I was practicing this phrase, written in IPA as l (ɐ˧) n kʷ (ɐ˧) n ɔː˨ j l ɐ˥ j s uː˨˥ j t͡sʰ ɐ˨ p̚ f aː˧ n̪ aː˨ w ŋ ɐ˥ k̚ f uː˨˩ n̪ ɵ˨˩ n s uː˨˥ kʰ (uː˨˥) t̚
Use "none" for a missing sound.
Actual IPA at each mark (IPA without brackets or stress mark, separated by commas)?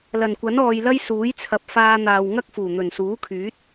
ɐ˨˩, ɐ˨˥, yː˨˥